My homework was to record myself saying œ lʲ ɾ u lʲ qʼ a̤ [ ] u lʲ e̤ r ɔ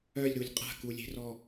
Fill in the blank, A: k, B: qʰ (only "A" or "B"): A